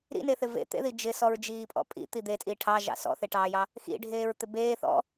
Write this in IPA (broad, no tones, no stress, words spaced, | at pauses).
ɾḭneθɪ vḛt̪ḛði d͡ʒɪsɔɹd͡ʒiːpʼɔ̰ pʼḭt̪i d̪etʼiː ʈʰɑʒɑ̰ sɔ̰θeʈɑːjɑ | xḭɖʱeːɹt̪ɪ beː θɔ̰